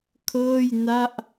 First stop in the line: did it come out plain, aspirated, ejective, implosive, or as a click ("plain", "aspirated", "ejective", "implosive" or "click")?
aspirated